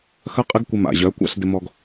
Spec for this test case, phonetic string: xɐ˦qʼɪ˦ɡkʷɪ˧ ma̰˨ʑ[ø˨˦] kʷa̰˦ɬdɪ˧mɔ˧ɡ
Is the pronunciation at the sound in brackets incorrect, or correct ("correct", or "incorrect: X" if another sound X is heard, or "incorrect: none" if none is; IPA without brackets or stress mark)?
incorrect: œ˨˦